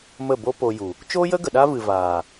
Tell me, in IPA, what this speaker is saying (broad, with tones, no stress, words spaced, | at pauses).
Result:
mə˦˨bo˦po˧ju˨ | t͡ʃoː˦jə˦ ɡə˨ ɗa˦vɨ˨ vaː˨